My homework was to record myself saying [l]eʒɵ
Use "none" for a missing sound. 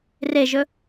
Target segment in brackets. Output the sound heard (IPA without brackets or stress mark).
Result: r